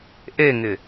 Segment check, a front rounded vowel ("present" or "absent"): absent